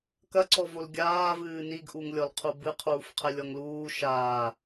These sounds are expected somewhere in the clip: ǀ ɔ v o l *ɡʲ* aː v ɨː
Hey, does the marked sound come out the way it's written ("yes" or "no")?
yes